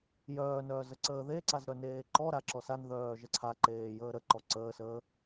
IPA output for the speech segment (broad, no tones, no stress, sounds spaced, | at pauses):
j œː n œː z ə ǀ əː ð e ǀ a z ɾ œ n eː ǃ ɔ ɾ a ǁ ɔ s a n ð œː ʒ ə ǀʰ a ǃ eː j əː ɾ ə ǃ ɔ ǀ əː s əː